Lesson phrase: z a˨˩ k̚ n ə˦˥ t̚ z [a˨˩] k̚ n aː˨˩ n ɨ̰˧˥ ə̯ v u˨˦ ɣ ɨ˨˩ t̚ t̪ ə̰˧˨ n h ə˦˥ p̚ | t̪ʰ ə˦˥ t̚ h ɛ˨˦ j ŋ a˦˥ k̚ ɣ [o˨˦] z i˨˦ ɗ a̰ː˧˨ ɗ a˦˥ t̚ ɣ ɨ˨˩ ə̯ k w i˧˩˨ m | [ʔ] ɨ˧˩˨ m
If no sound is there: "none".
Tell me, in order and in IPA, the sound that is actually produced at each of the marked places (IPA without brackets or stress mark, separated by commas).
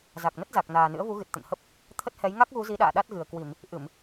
a˨˩, u˨˦, ʔ